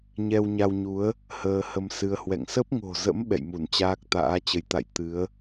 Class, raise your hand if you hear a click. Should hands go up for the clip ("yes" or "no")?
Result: no